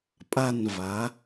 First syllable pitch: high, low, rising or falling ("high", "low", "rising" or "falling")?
falling